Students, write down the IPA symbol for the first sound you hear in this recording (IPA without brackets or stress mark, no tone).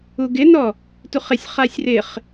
u